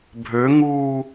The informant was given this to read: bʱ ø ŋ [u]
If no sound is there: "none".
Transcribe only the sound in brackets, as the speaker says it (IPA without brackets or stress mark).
uː